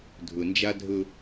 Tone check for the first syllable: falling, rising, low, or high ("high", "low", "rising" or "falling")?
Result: low